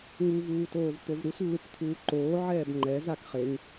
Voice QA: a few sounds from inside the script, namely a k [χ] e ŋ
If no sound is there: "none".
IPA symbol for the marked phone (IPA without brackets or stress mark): χ